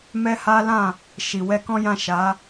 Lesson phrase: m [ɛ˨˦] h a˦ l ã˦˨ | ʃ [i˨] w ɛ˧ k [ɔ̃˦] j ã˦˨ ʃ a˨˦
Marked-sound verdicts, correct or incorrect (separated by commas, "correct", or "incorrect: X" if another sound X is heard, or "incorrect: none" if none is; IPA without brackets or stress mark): incorrect: ɛ˦, correct, correct